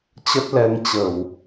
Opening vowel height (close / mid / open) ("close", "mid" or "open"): mid